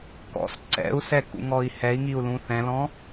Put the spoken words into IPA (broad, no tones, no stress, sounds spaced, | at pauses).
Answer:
k ɔ̰ s ǀ ɛ̰ u̯ s ɛ k ṵ ŋ ɔ i̯ h ɛ i̯ ŋ i u̯ l ũ θ ɛ̃ l ɔ̃